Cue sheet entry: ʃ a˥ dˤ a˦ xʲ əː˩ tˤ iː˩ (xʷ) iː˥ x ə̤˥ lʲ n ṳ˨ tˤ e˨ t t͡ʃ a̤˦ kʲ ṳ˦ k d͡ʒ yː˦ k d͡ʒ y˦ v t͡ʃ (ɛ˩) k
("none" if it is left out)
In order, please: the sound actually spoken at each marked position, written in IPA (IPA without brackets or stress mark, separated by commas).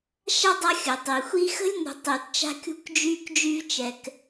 xʷ, ɛ˩